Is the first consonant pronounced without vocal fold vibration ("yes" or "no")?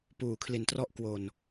yes